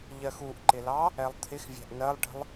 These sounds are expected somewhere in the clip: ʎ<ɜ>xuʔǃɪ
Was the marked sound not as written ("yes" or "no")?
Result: no